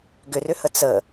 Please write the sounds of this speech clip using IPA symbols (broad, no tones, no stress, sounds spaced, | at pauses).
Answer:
ɡ ʏ r ʏ h ə t͡s ə